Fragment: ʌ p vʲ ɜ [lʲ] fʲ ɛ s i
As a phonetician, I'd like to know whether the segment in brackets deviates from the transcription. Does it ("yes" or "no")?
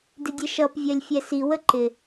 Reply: no